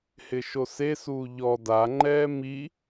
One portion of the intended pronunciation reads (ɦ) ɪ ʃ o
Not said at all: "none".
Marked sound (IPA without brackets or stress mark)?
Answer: h